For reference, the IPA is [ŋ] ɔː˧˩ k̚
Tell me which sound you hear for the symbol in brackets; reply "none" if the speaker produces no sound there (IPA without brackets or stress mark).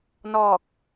n